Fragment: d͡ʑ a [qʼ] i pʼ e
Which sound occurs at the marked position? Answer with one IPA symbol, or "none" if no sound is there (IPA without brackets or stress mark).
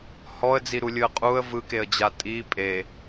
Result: tʼ